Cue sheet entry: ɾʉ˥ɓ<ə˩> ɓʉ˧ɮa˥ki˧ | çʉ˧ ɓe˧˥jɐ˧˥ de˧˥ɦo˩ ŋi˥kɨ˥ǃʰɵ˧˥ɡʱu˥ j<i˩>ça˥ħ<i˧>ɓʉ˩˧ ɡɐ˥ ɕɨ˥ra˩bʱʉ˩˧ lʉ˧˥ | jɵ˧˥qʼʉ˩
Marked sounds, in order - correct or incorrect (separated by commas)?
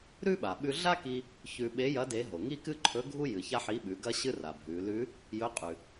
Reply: incorrect, incorrect, incorrect